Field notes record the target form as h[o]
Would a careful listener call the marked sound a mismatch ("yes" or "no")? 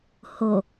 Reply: no